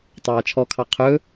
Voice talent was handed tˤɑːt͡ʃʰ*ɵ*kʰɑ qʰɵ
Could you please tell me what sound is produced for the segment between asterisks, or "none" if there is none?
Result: ɔ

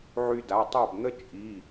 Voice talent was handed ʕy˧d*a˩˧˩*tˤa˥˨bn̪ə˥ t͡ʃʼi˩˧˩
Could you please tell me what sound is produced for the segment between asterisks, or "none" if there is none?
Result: a˩˧˩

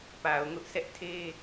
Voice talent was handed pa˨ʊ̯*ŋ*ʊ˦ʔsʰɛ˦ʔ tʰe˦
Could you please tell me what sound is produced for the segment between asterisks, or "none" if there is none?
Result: ŋ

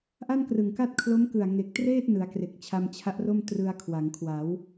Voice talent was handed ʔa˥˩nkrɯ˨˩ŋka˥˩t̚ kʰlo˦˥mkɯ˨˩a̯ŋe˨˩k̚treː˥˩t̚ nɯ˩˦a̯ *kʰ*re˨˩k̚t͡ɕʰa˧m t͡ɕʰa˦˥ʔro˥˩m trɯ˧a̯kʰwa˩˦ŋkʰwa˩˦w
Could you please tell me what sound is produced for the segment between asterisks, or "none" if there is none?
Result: k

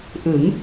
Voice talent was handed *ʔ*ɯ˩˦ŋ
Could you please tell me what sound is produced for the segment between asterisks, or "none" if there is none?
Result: ʔ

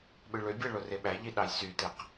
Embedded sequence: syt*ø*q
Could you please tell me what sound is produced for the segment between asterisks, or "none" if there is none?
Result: e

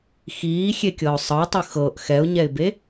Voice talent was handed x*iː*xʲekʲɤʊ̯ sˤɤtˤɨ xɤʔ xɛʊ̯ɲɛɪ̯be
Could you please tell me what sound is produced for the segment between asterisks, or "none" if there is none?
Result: iː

